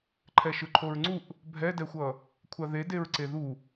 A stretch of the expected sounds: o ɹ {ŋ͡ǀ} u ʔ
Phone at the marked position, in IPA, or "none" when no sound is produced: ŋ͡ǀ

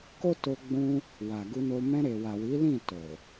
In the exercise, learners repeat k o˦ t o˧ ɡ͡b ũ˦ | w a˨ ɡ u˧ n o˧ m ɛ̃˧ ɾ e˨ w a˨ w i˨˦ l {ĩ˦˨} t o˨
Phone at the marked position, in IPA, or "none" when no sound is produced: ĩ˦˨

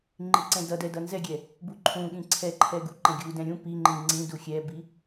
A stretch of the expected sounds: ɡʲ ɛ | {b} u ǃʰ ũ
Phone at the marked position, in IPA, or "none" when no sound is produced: b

